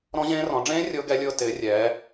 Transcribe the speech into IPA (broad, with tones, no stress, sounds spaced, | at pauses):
ɾ ɔ̃˦˥ ʑ ẽː˦˥ r ɔ̃˨˦ ɖ͡ʐ ẽː˦˥ rʲ ʊː˦˥ ɡ ɛ˦˥ lʲ ʊː˦˥ t ɪː˨˦ rʲ ɛː˨˦